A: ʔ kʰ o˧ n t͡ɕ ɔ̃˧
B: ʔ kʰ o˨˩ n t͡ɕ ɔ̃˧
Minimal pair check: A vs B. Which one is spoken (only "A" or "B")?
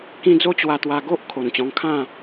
B